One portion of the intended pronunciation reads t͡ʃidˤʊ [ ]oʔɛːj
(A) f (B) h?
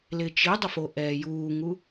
A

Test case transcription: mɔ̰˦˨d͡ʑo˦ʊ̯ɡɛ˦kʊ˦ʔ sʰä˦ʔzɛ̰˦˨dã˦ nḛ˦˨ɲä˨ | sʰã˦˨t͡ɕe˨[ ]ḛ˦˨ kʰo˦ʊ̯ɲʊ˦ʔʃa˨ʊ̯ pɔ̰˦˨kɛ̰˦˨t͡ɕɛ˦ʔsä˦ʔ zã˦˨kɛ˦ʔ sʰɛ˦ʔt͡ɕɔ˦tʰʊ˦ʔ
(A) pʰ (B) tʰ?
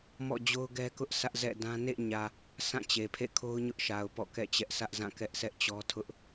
A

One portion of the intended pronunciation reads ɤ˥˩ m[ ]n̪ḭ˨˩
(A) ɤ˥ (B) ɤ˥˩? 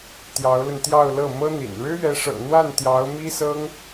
A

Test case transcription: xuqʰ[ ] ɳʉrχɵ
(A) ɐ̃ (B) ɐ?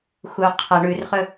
B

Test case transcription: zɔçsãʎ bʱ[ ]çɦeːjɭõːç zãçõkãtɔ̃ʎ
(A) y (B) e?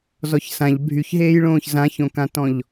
A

